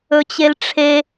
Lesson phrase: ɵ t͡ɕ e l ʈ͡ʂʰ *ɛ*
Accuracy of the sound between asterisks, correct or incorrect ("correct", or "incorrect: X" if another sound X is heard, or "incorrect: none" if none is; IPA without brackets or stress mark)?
incorrect: e